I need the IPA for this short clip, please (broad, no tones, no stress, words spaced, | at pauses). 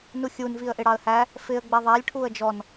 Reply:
nuxʲun viə̯ʔɪɽɑə̯hæ | fɪə̯ ɡ͡bɛðˤælʲ ʈʰuə̯d͡ʒɔn